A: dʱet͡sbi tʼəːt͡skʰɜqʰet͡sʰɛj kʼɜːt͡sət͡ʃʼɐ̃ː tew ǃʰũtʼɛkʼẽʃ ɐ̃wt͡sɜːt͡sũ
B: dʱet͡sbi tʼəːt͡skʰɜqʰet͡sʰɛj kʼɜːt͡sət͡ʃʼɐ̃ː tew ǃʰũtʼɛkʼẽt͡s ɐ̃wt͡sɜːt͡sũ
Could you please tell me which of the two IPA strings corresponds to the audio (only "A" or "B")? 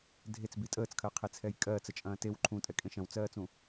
A